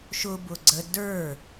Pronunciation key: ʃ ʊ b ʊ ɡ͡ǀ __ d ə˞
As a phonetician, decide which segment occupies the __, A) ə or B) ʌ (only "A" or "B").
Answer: A